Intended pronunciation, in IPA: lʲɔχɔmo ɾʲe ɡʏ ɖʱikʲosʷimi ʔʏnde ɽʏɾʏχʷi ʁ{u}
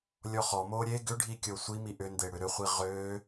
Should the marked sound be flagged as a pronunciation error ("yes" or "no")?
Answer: yes